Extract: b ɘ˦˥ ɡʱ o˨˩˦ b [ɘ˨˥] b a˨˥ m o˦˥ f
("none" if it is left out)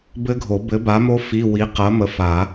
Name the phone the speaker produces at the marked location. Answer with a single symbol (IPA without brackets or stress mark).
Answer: ɘ˨˥